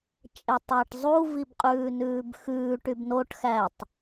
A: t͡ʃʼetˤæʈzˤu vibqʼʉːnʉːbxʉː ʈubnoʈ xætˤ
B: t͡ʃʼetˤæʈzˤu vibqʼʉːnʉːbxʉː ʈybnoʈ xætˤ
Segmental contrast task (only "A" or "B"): B